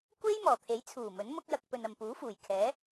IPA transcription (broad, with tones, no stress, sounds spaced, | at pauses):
kʷ e˥ j m ɔː˨˩ t̪ʰ e˨˥ j t͡sʰ uː˨˩ m ɵ˨˥ n m ʊ˥ k̚ j ɐ˧ k̚ p ɵ˨ n ɐ˨ m p uː˨˥ f uː˨˩ j kʰ ɛː˨˥